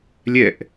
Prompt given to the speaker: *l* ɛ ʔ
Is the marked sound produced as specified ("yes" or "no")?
no